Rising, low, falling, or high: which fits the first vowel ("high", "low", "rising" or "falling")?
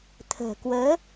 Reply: low